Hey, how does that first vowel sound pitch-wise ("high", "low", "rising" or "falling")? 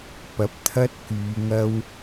rising